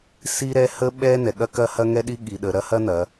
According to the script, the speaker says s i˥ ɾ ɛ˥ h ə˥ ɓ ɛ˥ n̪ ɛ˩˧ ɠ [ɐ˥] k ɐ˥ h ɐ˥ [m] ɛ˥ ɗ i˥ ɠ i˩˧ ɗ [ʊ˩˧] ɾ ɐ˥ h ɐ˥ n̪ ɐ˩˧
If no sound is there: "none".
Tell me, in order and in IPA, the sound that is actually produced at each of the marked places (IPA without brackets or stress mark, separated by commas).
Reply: ɐ˥, ŋ, ə˩˧